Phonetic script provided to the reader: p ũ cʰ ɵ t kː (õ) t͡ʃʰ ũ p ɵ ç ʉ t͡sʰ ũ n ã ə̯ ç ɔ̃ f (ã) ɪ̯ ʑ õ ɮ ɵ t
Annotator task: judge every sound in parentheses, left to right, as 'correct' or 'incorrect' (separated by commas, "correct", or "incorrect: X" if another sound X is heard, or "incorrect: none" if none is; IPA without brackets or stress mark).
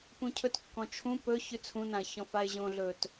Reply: incorrect: ɔ̃, incorrect: a